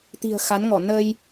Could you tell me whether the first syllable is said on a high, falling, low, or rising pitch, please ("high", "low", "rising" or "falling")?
low